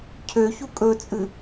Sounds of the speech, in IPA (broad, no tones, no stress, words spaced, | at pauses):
cʰøçu kʼɵt͡sʼɨ